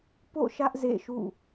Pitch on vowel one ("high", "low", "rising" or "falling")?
falling